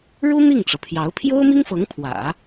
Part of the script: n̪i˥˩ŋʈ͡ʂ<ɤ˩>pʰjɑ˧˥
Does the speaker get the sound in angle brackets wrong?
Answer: no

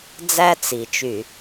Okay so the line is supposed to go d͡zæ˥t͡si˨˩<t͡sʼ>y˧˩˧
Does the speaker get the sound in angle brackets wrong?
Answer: yes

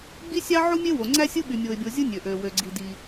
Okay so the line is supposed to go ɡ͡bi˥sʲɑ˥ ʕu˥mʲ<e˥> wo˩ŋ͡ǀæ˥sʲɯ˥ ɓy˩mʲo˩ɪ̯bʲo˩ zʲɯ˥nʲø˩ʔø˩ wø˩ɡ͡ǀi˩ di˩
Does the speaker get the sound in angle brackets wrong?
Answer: no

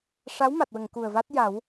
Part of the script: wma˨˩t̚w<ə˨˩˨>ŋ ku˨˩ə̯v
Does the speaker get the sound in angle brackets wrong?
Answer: no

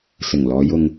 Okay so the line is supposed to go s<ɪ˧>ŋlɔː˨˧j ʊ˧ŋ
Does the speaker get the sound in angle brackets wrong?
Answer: yes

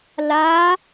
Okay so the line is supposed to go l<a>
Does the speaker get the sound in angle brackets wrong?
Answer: no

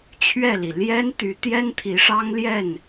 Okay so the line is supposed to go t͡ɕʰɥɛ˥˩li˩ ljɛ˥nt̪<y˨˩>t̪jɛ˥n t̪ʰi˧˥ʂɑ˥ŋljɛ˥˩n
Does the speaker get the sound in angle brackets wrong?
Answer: yes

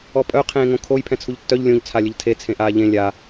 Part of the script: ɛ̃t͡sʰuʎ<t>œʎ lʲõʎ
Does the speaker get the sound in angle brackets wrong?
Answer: yes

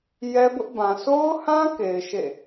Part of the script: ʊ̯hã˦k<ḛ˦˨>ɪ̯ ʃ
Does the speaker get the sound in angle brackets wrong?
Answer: yes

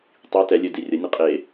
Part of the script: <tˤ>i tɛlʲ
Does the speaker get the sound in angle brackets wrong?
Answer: no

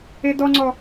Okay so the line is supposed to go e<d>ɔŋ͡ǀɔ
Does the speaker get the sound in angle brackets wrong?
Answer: no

